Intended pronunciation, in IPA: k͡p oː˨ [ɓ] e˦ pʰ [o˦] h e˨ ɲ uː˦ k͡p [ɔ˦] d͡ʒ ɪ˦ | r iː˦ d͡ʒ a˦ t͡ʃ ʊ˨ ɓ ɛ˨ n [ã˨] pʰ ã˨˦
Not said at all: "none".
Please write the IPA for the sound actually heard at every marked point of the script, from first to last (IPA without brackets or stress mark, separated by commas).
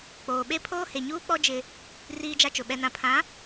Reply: ɓ, oː˦, ɔ˦, ã˨